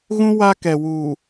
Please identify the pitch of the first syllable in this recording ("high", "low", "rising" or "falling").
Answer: high